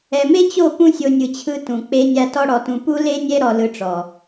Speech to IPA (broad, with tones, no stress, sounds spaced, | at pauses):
ɛ˨ m e˦ t͡ɕ o˦˨ p ũ˦ sʲ o˧ nʲ ɯ˨ t͡ɕʰ ɯ˧ t ũ˨ k͡p e˧ nʲ a˧ t ɔ˦ ɽ ɔ˧ t ũ˧ p u˦ l e˦ nʲ ɛ˦ ɾ ɔ˧ l ɯ˧ ʈ͡ʂ ɔ˨